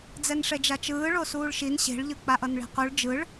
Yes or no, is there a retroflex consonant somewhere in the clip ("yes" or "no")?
yes